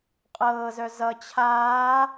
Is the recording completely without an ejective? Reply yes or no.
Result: no